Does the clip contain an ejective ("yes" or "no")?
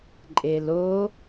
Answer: yes